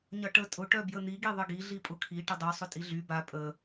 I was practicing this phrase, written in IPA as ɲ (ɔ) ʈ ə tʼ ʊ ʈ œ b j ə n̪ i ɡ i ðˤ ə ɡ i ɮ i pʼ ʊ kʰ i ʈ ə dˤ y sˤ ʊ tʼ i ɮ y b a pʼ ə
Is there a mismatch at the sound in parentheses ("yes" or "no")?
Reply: yes